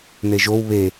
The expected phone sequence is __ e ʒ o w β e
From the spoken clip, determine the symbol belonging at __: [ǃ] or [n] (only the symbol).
n